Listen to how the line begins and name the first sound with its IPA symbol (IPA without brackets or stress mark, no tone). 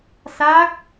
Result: s